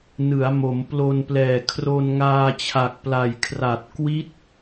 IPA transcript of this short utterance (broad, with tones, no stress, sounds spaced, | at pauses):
n ɯ˩˦ a̯ m o˩˦ m p l o˧ n p l ɛː˨˩ kʰ r o˧ n ŋ aː˧ t͡ɕʰ a˨˩ k̚ p l a˨˩ j kʰ r a˨˩ t̚ k w i˦˥ t̚